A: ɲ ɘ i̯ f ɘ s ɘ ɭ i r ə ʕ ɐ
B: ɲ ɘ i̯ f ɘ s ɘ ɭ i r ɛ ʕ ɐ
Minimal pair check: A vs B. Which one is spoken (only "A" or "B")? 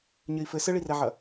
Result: B